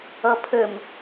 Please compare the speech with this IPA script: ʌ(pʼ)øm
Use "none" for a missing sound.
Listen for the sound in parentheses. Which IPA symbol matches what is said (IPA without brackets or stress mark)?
pʰ